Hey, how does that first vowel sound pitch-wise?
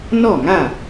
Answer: falling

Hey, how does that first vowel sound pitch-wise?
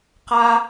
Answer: high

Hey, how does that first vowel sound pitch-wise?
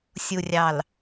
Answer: low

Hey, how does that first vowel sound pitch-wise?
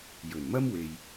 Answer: low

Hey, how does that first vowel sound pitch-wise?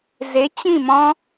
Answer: rising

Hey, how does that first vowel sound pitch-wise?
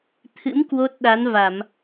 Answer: rising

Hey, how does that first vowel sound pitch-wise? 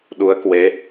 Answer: rising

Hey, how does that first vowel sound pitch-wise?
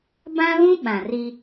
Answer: high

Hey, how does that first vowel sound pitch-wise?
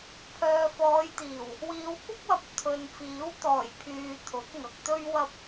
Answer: low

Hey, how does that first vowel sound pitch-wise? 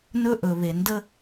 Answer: high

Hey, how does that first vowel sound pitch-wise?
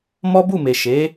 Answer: high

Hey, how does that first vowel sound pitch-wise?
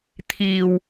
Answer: low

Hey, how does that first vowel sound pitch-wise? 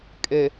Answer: low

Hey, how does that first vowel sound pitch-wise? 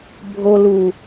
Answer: low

